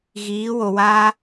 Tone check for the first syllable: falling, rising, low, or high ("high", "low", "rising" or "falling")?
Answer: rising